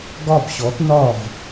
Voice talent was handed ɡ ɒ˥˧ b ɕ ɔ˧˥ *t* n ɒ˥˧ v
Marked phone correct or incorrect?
correct